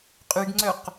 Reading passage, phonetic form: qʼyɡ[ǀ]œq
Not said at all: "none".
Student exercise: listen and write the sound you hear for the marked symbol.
ŋ͡ǀ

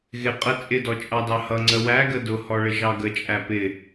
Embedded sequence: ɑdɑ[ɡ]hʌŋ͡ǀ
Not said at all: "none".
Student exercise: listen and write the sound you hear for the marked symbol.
none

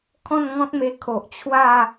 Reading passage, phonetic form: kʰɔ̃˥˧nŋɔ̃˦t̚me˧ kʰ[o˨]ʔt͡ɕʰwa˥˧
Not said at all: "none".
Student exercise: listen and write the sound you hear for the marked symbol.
o˨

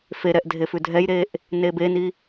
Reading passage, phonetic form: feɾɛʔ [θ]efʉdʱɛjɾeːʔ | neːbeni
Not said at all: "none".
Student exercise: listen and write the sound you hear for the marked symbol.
dʱ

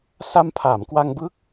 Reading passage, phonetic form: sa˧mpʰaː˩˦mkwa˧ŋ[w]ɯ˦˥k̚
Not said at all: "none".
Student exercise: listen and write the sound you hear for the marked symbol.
b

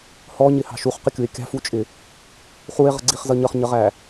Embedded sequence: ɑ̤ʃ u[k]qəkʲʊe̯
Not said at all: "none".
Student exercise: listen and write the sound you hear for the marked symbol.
χ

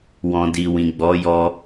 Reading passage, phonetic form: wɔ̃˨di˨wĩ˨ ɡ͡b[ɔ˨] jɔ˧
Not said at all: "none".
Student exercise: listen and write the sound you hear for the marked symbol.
ɔ˨˦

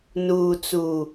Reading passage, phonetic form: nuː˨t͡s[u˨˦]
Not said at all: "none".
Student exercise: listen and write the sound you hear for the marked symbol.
u˨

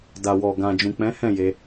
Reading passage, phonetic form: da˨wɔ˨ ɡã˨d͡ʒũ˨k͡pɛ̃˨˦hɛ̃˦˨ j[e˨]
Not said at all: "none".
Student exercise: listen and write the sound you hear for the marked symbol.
e˧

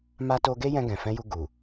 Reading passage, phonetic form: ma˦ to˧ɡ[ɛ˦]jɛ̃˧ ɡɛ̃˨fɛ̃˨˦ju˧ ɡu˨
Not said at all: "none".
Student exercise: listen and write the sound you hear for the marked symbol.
e˦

